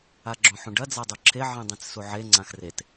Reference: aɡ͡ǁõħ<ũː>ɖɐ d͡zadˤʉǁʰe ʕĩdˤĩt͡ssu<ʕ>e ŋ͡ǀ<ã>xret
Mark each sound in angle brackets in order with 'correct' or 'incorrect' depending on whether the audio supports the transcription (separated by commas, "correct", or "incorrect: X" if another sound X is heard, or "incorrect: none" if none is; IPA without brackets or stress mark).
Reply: incorrect: ũ, correct, correct